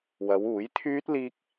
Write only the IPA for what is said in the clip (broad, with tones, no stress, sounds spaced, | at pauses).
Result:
w ɐ˨˧ w uː˨˥ j t̪ʰ yː˥ t̚ l iː˥ k̚